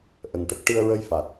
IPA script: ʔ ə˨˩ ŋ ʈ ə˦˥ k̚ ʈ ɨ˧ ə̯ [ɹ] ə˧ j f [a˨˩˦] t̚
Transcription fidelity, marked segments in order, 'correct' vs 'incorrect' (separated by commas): correct, incorrect